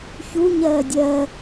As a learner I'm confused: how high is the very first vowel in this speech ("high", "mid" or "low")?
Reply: high